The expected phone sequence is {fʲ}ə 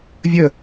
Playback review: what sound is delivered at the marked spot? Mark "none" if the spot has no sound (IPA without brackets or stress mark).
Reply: vʲ